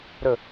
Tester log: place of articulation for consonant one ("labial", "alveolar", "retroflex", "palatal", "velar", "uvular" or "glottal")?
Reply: alveolar